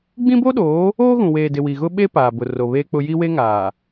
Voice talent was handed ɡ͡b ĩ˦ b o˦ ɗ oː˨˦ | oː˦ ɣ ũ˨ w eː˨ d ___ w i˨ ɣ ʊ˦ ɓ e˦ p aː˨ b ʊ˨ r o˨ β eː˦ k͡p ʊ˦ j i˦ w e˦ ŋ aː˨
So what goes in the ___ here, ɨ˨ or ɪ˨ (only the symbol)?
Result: ɪ˨